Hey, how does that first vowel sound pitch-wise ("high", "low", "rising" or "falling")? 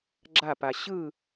falling